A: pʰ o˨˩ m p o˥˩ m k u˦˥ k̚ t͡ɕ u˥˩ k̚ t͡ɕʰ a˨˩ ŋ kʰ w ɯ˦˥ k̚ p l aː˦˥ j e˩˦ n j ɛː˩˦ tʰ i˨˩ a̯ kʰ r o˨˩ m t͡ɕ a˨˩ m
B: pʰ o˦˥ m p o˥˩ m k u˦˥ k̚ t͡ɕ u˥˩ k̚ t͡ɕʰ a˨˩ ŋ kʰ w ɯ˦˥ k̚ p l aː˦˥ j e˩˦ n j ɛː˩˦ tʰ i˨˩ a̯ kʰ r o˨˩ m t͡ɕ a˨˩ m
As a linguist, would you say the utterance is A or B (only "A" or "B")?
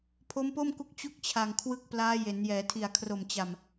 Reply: B